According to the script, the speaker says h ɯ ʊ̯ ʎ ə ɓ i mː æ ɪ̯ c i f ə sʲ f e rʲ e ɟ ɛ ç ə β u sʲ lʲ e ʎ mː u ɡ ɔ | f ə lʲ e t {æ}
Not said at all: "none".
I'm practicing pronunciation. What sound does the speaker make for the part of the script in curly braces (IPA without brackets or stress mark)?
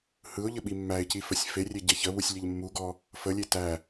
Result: æ